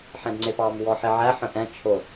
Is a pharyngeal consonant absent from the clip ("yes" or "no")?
no